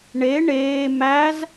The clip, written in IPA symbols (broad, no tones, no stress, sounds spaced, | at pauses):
ɳ e ɳ eː m æ z